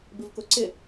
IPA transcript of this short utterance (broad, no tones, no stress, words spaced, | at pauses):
bɪvkʊǀɪ